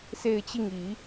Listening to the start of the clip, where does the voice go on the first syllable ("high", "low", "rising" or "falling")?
falling